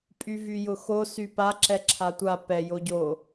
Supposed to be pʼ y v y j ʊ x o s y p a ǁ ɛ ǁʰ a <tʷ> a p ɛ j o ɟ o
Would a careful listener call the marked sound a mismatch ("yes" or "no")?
no